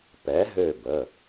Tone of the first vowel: rising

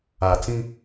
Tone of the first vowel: low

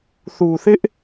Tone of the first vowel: low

